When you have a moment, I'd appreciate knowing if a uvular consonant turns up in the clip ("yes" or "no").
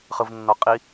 yes